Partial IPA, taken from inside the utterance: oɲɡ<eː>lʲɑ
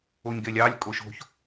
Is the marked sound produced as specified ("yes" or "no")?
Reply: no